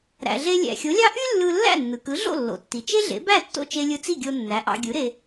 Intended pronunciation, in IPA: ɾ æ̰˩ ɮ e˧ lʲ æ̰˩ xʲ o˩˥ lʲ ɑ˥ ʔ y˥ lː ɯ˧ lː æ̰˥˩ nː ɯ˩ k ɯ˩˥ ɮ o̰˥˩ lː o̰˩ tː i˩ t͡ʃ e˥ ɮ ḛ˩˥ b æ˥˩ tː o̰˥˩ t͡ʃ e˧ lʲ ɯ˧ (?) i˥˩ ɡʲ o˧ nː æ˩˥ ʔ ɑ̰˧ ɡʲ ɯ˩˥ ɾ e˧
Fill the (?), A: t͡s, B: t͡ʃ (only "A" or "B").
A